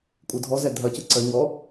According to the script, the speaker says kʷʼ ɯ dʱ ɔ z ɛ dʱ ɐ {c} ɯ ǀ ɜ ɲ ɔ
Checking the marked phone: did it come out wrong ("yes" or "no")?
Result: no